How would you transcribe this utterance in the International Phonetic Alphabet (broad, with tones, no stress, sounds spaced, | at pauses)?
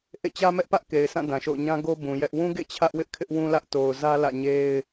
ʔ ḛ˦˨ t͡ɕ ä˦ m ɛ˦ ʔ p ä˦ ʔ k e˨ ɪ̯ s ã˦˨ d ã˨ ʃ o̰˦˨ ʊ̯ ɲ ã˦ ɡ o˦ b ũ˨ j ɛ˦ ʔ w ũ˦ ɡ ḛ˦˨ t͡ɕʰ ä˦ ʔ w ɪ˦ ʔ kʰ ɪ˦ ʔ w ũ˦ l ä˦ ʔ t o˨ ʊ̯ z ä˦ l ä̰˦˨ ɲ e˦ ɪ̯